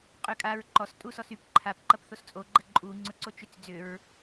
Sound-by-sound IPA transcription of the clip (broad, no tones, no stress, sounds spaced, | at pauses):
qʼ ʏ kʼ a ɹ ǃ ɔ s tʼ u s ɔ s y p ǃʰ a p ǃ ɐ p θ o s t͡sʼ o ɡ͡ǃ ə ǃʼ u ŋ͡ǀ ʊ ǀ o t͡ʃ ʏ t͡s d͡z ʏ ɹ